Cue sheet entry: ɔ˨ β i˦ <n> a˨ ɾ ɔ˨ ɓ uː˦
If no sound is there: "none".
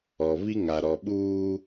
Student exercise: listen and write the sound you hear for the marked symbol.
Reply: ŋ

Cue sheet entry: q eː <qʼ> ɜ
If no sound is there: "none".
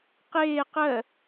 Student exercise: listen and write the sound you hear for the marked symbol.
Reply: q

